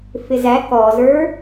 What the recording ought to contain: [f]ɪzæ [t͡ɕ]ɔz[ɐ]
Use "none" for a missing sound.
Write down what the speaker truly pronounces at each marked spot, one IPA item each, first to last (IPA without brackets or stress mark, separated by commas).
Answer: f, k, ə˞